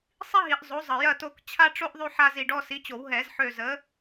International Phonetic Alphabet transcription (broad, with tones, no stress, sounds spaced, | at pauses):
sˤ i˥ ɦ i˨˩˦ ʔ zˤ o˨˥ zˤ ə˨˩˦ j ɐ˦˨ t o˦˨ k t͡ɕʰ a˥ ʈ͡ʂ o˥ ʔ ðˤ y˥ ħ a˥ z i˦˨ ɖ ɔ˥ s i˨˥ t͡ɕ o˨˩˦ w ɦ ɛ˨˩˦ z ħ ø˦˨ z ə˨˥